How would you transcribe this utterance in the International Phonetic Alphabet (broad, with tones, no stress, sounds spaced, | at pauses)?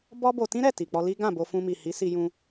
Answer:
b ɔ˦ b o˧ t ĩ˦ ɾ ɛ˦˨ t i˨ k͡p ɔ˧ l i˦ ɡ ã˦˨ b o˧ f ũ˧ m i˨ h i˨˦ s i˧ j ũ˧